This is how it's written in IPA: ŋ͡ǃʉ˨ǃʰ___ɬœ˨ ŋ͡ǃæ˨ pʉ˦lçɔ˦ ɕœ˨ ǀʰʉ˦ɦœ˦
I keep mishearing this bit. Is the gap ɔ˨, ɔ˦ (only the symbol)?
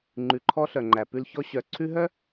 ɔ˦